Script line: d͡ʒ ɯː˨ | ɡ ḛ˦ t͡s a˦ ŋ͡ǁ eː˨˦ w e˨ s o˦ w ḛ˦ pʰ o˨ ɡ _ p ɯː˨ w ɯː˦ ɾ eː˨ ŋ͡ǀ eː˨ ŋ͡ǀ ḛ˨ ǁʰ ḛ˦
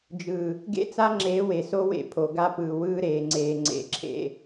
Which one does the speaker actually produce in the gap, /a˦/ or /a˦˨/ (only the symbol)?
a˦